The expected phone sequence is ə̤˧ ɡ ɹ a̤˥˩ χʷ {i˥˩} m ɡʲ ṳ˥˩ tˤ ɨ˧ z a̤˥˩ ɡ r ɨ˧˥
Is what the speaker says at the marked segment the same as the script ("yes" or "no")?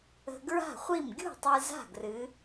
yes